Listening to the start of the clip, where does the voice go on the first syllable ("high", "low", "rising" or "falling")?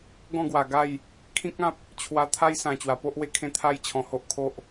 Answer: falling